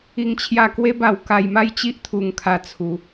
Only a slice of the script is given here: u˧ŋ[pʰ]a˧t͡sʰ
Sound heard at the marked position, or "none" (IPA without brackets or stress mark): kʰ